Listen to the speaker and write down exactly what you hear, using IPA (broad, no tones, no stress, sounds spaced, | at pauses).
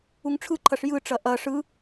u ŋ ʈ͡ʂʰ ɯ ǃʰ ɐ ʂ j ɯ ʈ͡ʂ ɐ ʔ ɐ ʂ ɯ